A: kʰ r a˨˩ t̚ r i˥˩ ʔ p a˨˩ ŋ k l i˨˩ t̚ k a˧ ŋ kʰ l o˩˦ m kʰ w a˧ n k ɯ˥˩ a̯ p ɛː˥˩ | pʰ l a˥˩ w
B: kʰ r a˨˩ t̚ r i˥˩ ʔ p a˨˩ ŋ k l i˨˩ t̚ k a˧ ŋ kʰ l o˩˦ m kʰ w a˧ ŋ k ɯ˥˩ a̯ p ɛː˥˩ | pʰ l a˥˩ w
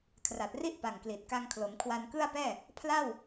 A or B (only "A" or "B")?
A